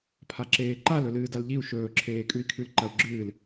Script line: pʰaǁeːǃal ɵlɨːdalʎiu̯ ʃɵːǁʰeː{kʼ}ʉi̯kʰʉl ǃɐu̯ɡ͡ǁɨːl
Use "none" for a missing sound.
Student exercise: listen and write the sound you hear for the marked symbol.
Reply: kʼ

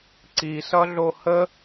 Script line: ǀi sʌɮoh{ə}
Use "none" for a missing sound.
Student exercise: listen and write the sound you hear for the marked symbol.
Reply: ə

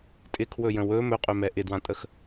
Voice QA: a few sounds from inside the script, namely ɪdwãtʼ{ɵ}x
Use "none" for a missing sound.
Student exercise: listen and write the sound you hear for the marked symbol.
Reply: ə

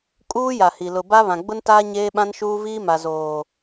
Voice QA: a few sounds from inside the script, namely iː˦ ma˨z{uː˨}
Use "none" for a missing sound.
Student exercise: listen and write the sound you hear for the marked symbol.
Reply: oː˨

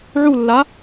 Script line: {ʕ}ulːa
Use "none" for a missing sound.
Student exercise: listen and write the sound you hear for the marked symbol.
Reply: ʕ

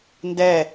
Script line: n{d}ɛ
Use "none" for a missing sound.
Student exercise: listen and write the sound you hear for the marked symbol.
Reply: d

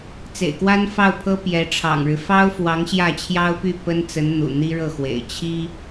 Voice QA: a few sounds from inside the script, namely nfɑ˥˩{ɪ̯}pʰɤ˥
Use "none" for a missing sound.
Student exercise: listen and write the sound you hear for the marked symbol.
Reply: ʊ̯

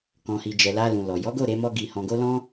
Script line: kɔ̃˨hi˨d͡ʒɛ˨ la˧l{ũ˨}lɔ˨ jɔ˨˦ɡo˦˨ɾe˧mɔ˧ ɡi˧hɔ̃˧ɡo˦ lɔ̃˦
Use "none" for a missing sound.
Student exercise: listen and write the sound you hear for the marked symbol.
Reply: ũ˨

